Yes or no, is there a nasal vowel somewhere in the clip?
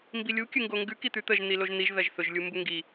no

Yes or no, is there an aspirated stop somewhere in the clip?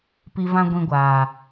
no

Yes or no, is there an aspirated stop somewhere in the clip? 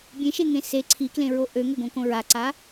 yes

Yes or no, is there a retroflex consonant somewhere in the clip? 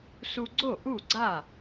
no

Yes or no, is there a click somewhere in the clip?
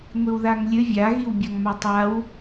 no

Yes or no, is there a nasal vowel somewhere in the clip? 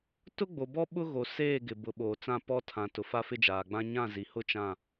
yes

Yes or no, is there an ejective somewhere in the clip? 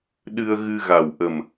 no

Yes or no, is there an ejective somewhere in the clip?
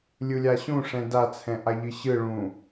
no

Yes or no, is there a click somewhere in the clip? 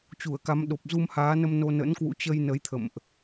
no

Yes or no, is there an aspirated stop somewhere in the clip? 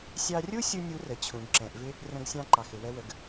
yes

